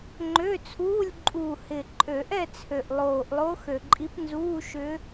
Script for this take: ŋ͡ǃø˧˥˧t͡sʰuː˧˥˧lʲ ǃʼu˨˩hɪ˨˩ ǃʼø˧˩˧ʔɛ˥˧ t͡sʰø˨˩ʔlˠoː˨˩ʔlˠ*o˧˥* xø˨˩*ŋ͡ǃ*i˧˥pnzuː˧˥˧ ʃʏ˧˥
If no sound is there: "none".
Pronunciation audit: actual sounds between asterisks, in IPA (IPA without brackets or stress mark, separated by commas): o˧˥, ǃʼ